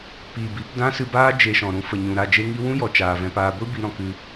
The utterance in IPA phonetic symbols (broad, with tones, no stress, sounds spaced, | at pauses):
p iː˨ b i˨˦ p d ã˦ s ɨ˧ b aː˦ d͡ʒ e˧ ʃ ɔ̃˨ ɾ ũ˧ f ə˨ ɲ ũ˨ ɾ a˦˨ d͡ʒ e˦ ŋ i˦ w ũ˦ j ɔ˨ t͡ʃ aː˧ v ɛ̃˦ p aː˦ ɡʷ i˦ b i˧ ɾ ɔ̃˧ k ɨ˦